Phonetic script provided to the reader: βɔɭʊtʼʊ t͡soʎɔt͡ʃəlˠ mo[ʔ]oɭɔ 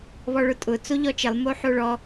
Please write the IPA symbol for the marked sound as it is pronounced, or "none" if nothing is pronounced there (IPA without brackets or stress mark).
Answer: ħ